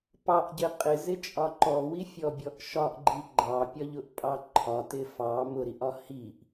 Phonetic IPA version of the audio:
p ɑ ʔ ɟ ɪ qʼ ɪ z ɪ t͡ʃʼ ɒ ǃ ɔ w i fʲ ɔ bʲ ɔ ʔ ʃ ɒ ʔ ɡ͡ǃ i ɡ͡ǃ ɑ pʲ ɒ ʎ ʊ ʔ pʼ ɑ ǃʰ ɒ t ɪ f ɑ m ʊ ɾ i ʔ ɒ h i ʔ

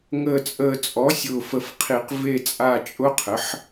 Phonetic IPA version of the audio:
ŋ əː˨ t͡sʼ əː˨ t͡sʼ ɔ˩˥ sʲ ʊː˨ f ə˨ f qʰ i˨˩˦ q v e˦˨ t͡sʼ a˦˨ t͡ʃʼ ʊ˦˥ qʰ ə˩˥ ħ

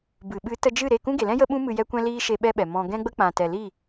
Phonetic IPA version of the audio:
b ɨ˨ ɓ ɨ˨˦ t ə˧ d͡ʒ ɨ˦˨ ɾ e˦˨ k ũ˦ ɡ e˨ l ɛ̃˦ j ə˦ ɓ ũ˦ m ɨ˧ j ɛ˦ kʷ ɛ̃˦ l iː˦ ʃ e˧ ɓ ɛ˦ ɓ ɛ˨ m ɔ̃˨ ɡ ɛ̃˦ ɡ͡b ə˦ k͡p ã˨ t ɛ˨ l i˦˨

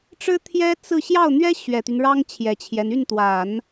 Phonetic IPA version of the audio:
ʈ͡ʂ ɻ̩˥ t̪ʰ j ɛ˥ t͡s ɹ̩˥˧ ɕ j ɑ˥˩ ʊ̯ n̪ ɥ ɛ˥ ɕ ɥ ɛ˨˩ t̪ y˦ n ɻ ɑ˥ ŋ t͡ɕʰ j ɛ˨˩ t͡ɕʰ j ɛ˦ n y˥˩ n t̪ w a˨˩˦ n

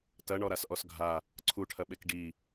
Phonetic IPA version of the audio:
t ɐ ɳ ɔ ɾ a s ʔ ɔ s ɡʱ a | ǀʰ u ʈʰ ɐ ɓ e k ɖ i

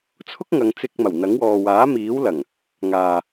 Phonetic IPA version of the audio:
t͡sʰ ʊ˥ k̚ ŋ ɐ˨˧ ŋ t͡s ɪ˧ k̚ m ɐ˨˩ w n̪ ɐ˨˥ ŋ w ɔː˨ w aː˨˥ m iː˨˥ w l ɐ˨˩ ŋ | ŋ aː˨

